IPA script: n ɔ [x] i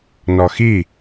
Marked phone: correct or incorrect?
correct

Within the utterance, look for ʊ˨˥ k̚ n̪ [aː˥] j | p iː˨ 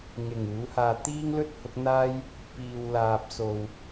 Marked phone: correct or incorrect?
correct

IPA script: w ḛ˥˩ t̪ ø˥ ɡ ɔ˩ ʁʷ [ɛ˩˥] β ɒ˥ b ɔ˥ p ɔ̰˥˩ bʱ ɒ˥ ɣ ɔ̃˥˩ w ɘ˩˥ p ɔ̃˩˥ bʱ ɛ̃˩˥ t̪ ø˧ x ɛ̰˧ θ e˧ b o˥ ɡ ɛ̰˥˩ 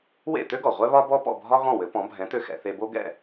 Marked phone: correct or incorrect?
incorrect: ɛ˥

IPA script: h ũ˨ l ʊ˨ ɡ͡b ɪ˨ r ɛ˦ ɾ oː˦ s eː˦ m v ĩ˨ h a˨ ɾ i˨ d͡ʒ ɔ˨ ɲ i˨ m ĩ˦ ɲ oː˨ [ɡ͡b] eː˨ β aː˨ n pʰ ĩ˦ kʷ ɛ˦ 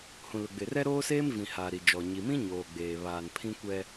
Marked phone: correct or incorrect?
correct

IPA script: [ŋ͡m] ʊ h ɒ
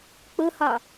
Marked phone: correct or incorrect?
incorrect: k͡p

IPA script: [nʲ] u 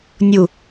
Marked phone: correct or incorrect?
correct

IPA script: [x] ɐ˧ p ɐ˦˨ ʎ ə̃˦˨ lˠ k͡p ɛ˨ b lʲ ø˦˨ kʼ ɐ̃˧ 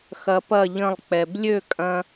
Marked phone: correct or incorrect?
correct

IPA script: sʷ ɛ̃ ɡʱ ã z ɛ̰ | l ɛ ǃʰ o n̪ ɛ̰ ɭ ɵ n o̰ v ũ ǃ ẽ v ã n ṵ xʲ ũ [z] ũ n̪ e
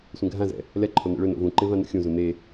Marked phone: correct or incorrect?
correct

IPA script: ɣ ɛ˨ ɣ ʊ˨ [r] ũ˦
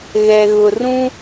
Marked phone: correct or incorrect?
correct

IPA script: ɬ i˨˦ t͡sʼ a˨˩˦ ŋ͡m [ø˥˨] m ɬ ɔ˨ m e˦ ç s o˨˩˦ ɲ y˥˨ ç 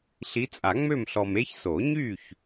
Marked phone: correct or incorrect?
correct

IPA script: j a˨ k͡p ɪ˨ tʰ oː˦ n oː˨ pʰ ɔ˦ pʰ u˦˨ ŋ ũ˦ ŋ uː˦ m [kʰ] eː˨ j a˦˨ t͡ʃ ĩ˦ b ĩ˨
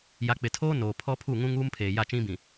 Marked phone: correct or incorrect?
incorrect: pʰ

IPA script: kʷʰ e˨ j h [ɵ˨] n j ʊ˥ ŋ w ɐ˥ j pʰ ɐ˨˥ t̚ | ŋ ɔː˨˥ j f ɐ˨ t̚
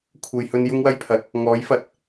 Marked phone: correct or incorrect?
incorrect: ɵ˧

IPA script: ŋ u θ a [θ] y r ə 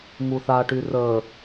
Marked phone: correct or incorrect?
incorrect: ʈ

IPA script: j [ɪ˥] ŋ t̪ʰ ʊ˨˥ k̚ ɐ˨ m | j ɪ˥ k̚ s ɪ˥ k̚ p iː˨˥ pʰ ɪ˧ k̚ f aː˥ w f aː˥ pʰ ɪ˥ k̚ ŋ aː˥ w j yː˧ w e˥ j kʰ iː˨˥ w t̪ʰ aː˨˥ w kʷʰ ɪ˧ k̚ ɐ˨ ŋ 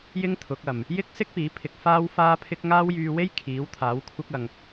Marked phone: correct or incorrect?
correct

